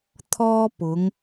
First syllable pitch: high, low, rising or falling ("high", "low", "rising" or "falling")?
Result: high